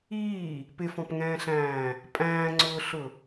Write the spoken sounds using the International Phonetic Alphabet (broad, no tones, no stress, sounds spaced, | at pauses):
iː | p ɪ f ɔ̃ p ŋ ɛ̃ː ɬ æ̃ː | pʼ æ̃ː ŋ͡ǀ ʊː ɬ ʊ